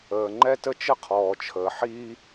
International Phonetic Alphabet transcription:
əː˩ŋ͡ǃɛ˥tə˥ t͡ʃə˥qʰɔː˩ t͡ʃʰəː˩ħiː˥

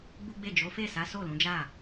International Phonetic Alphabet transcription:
ɡ͡bu˦ɡ͡be˦˨ d͡ʒo˨˦fe˦˨sa˨˦ so˦˨lũ˨˦d͡ʒa˦˨

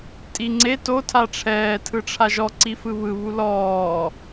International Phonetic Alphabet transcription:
tʼiŋ͡ǀe to tʰaʈ͡ʂʰɛː tʰɯʈ͡ʂʰaʒɔ ǀifɯβɯ βulɔː

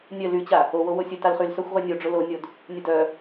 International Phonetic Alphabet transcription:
nʲœ lyt͡ɕa | owo wosʲœtalχyl sœxʷʁynʲoɖ͡ʐʊ lonʲod | nʲʊdœ

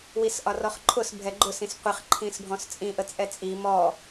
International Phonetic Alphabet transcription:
wisʔɒrɔχǃʰʊs bʱɛɡ͡ǃʊsĩs qʷɪχǃʰĩs bʱɔ̃st͡sʼĩʔə t͡sʼɛt͡sʼi mɔ

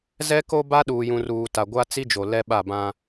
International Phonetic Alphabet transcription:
zɛ˦ko˦ ba˦ɗuː˨jũ˨ruː˨ ta˨ɡʷa˦t͡si˦d͡ʒo˨ lɛ˦ɓa˦˨bã˦

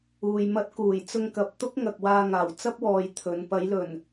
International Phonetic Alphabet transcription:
uː˧jmɐ˥t̚ kuː˨˩j t͡sʊ˧ŋkɐ˨p̚ t̪ʊ˥k̚ŋɐ˨k̚ waː˧ŋaː˨˩w t͡sɐ˥p̚wɔː˨j t̪ʰɵ˨˧n pɐ˨˧jlɵ˨˩n

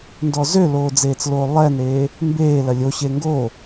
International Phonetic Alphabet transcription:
ndɔzøloː d͡zeːt͡sloːlˠɛːneː | mbeː lɐlʲoɕeː ŋɡo

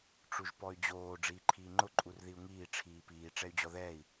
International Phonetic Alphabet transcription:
ʈ͡ʂuʒpɔy̯d͡ʑoː ɖ͡ʐiːǃʰiːŋ͡ǃʊ ǃʼurðiu̯ŋiː ʈ͡ʂʰiːpiː ʈ͡ʂɛy̯d͡ʑɔðɛːi̯

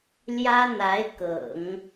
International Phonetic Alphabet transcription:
ljä˥n̪a˧˥ɪ̯kɤ̰˨˩˦ŋ

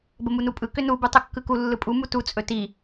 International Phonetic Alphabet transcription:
bəmunupʼɯ kʏnu bɯtˤɵkːɯku lːɯpʼu mutu t͡sʼɵti

